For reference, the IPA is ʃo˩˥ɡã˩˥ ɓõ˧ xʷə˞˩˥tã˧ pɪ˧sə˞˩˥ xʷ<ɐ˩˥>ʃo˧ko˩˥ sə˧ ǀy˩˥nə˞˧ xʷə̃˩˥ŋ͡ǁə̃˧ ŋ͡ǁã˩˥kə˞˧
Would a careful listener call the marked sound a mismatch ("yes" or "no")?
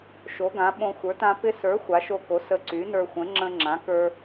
yes